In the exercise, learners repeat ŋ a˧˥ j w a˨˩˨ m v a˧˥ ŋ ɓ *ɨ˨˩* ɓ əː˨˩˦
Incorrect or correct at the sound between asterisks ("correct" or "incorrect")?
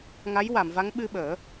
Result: incorrect